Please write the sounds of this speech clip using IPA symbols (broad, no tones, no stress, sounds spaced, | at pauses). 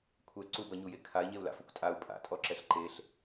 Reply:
kʷʰ ɛ ǀ u b ʌ ɲ u j e kʰ a i̯ ɲ e u̯ l a̰ f ʌ kʷ tʼ a u̯ pʼ a̰ tʼ ɔ ǁ ɛ ɬ ǃ e ɬ